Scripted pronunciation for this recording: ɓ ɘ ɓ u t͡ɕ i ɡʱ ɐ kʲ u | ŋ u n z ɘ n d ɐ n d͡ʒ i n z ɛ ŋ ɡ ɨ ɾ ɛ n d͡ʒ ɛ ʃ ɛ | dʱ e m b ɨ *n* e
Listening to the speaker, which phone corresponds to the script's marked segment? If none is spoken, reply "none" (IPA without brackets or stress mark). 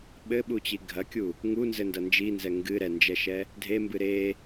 ɾ